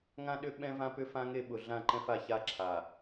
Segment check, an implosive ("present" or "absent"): present